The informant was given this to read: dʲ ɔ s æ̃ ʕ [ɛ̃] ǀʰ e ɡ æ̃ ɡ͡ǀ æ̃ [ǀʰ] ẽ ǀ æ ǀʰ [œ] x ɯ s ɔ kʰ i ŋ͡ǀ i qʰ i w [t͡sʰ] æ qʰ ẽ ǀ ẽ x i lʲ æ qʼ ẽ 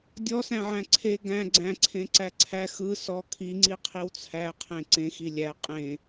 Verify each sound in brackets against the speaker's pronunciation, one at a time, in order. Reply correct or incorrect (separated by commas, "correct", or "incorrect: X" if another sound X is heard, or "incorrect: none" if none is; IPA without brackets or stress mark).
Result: incorrect: æ̃, correct, incorrect: æ, correct